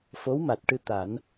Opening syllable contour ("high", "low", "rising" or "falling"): rising